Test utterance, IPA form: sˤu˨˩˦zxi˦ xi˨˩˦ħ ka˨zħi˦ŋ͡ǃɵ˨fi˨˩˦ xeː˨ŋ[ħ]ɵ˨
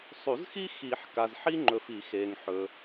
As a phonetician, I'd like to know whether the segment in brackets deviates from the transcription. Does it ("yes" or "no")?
no